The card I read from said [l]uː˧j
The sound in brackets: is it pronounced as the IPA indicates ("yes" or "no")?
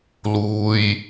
yes